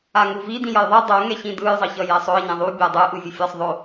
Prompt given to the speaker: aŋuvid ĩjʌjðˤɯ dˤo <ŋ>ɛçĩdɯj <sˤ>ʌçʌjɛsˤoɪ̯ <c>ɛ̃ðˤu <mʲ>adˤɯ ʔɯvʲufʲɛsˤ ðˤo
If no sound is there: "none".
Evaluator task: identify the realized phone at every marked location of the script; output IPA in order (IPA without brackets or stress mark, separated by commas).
ŋ, zˤ, ɲ, bʲ